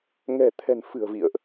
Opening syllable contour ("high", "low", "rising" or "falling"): low